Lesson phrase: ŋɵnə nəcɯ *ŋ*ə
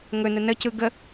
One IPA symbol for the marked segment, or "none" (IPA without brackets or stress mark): ɡ